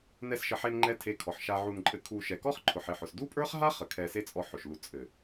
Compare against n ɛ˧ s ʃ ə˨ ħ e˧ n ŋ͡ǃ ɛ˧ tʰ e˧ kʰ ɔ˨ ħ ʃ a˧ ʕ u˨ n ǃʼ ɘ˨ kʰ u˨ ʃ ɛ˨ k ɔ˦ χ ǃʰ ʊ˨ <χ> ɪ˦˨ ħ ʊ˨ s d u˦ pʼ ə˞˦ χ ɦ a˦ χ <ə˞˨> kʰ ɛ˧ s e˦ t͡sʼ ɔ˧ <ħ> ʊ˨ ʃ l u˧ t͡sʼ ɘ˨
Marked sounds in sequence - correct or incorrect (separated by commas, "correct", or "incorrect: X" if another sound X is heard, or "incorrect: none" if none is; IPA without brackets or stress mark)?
incorrect: ħ, incorrect: ə˨, correct